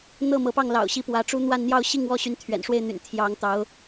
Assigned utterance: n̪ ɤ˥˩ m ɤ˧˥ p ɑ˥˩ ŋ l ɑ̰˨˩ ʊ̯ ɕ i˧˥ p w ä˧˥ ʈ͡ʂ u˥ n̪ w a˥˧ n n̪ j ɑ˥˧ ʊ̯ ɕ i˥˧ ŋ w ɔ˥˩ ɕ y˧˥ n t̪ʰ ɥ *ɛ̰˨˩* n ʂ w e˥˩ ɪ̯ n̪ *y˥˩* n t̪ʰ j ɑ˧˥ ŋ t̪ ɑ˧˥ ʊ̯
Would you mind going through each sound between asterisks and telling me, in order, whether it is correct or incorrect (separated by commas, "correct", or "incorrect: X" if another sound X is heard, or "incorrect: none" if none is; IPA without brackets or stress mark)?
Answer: correct, incorrect: y̰˨˩